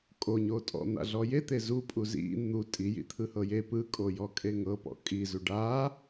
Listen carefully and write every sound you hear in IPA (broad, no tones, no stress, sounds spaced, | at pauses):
kʼ o ɲ o tʼ ɔ̰ n̪ a̰ ɮ ɔ j e t̪ e z u pʼ u z ḭ n̪ u tʼ i j ḭ t̪ʰ ɯ h ɤ j e p ɯ kʼ o j ɔ kʼ e ŋ ɤ p ɔ̰ kʼ i z u ɖ a